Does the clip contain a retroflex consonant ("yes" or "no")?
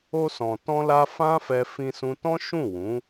no